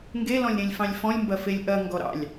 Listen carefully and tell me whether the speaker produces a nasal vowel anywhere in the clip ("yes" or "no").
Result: yes